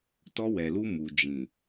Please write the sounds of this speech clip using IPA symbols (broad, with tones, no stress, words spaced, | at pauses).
tɔ˧wɛ˨lu˧ mu˨ d͡ʒĩ˨